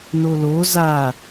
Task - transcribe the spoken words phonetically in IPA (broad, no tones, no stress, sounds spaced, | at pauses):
n o l o z a